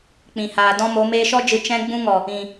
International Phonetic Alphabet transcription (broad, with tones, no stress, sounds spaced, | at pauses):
k͡p ĩ˨ h aː˨ d ɔ̃˦ m o˨˦ m eː˧ ʃ ɔ˦ d͡ʒ ɨ˨ t͡ʃ ɛ̃˧ ɡ͡b ũ˧ ŋ ɔ˨ | ĩ˨